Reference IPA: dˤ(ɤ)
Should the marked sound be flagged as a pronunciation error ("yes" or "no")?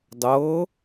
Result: no